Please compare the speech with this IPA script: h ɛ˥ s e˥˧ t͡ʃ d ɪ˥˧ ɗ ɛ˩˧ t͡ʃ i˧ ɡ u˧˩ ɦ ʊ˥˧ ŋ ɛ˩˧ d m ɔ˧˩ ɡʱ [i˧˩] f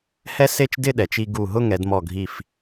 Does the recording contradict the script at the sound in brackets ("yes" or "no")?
no